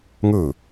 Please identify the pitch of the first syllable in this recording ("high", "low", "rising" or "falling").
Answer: falling